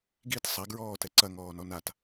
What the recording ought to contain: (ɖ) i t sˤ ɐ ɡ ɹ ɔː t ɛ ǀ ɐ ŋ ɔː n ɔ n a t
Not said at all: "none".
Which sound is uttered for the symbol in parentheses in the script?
ɡ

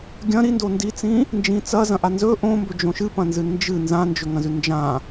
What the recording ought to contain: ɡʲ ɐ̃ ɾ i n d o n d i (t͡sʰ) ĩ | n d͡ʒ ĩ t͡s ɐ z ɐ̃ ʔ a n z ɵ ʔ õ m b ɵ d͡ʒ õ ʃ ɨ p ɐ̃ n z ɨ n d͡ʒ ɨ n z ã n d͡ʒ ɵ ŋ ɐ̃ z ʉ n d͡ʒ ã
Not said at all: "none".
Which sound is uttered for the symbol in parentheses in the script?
t͡s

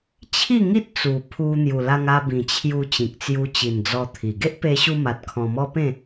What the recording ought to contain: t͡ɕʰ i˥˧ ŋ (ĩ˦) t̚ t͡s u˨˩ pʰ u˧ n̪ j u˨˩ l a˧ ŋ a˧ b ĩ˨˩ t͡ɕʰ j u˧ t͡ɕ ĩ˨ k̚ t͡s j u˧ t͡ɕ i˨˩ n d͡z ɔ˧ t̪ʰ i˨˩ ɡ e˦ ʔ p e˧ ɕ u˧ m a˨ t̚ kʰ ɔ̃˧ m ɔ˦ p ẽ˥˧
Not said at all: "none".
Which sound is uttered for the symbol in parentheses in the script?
i˦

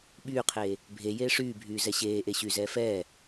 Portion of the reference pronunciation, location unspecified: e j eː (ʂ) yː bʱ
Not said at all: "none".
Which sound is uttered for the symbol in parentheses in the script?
ʂ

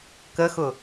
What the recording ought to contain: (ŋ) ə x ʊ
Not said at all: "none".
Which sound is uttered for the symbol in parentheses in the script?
k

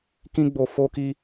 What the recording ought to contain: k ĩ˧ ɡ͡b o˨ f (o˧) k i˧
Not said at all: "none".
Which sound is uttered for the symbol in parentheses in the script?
o˧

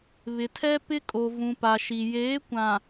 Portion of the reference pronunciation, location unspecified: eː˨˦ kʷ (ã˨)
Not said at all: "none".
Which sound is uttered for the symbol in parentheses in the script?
ã˨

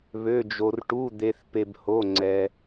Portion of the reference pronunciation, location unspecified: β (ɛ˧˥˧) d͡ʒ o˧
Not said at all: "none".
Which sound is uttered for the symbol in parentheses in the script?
ø˧˥˧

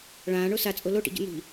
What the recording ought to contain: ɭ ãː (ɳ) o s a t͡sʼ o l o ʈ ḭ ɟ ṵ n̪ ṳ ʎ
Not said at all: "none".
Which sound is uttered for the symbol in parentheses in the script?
ɳ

